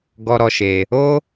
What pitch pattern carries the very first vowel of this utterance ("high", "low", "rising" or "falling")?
high